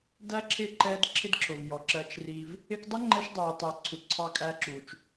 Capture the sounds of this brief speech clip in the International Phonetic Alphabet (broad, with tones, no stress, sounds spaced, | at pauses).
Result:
d æ˦ ǁʰ ɪ˦˨ ǃ ɛ˦ d ǁʰ ɪ˦ d ǁʰ ʊ˨ v j ɔ˨ ǁ ɜ˧ t͡ʃ r i˧ v | ɪ˧ k dˤ ə˦ ŋ͡ǃ ɛ˧ ʃ dˤ u˨ j tˤ ɛ˨ ǀʰ u˨ ǀʰ ɑ˧ kʼ æ˧ ǁ u˨ t͡ʃ